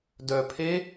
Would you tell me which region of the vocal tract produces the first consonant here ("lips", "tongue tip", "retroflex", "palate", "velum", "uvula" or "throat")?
tongue tip